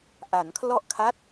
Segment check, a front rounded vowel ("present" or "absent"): absent